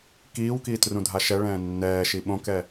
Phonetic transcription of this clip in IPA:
kiːwkiːtrũdʱa ʃɛɭɛ̃ː nːɛːʃi ɓõkɛ

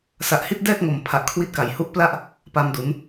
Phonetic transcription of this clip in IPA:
sa˨˩ʔhi˥˩t̚dɛː˥˩k̚ŋo˨˩m pʰa˨˩ʔkʰwi˦˥t̚ka˩˦j hu˦˥ʔpla˥˩ʔ | pa˧mdu˩˦n

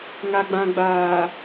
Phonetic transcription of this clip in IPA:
ŋa˨ɡ͡bã˨ɡ͡baː˨

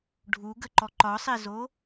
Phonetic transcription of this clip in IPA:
ɖʱuɡəǃɔ ǃɒsˤezo

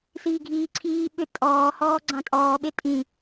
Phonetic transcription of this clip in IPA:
siːɡʱiːǀʰiː ɓʏ tʼɔː hɔːɡ͡ǀɑ̃tʼɔː ɓetʼĩ

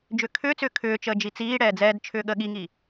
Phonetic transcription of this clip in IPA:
d͡ʒʏːkʰʏːt͡sʏː kʰʏːt͡ʃəː d͡ʒit͡siːɽɛː d͡zɛːdt͡ʃʰʏː ɠəːɠiŋiː

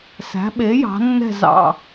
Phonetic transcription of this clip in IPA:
sæ̤˨˥ɓe˨˥ jɑ̤˨˥nːɛ̤˥˧zɑ̰˥˧

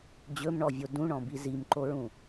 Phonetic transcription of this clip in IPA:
d͡ʑɵmɳɔvʲo dũɳɔ̃bi zimǃoɹũ

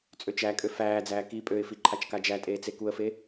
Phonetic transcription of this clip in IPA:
t͡sʼøt͡ʃækʼø fæːd͡zæː ki pʼøɪ̯fi ǃʰat͡ʃkad͡ʒætʼeː t͡sekuə̯fe

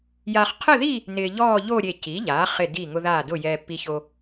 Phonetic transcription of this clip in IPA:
ja˧χqʰɪ˥˧ði˥˧ | nɪː˧ʎɔː˥˧ʎo˥˧ ɾʲe˧˩ci˩˥ʎaː˩˥χɪ˧˩ di˧˩ŋʊ˧ðaː˧˩dʊ˧˩ jɛː˧pːi˧ço˧

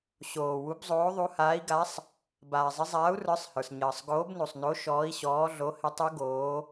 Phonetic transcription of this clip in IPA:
ɕoː˩ wu˨˦bzˤoː˨˦ðˤu˨˦haː˨˦i̯ ɡa˨˦sˤ | baː˩zˤɪ˨˦ zˤaː˨˦u̯rə˞˨˦sˤhə˞˩s ɲəː˩sˤɡoː˨˦bnu˩sˤno˨˦ ʃɔː˨˦i̯ɕɔː˨˦ ɮo˨˦hɪ˨˦tˤu˨˦ ɡoː˨˦

